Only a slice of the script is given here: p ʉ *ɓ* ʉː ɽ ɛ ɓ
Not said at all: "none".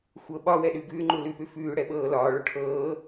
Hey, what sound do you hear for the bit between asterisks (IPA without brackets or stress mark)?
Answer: f